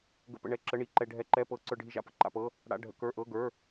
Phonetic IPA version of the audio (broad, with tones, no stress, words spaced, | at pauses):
ɡə̰˧pə̰˧ ɳɛ˧˥˧ǁə˧˥˧ɳi˧˥˧ ǃɛ˧ ɖʱɛ˧˥˧ǃɛ˧˥˧pɤ˧ ǀə˞˧ɖʱi˧ʒa̰˧pə̰˧˥˧ ǃa̰˧pɤ˧˥˧ | ɽa̰˧˥˧ɖʱə̰˧˥˧ kə˞˧˥˧ʔɤ˧˥˧ɡə˞˧˥˧